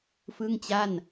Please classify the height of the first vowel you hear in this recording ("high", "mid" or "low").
high